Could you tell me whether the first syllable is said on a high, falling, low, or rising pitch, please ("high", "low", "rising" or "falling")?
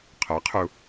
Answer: rising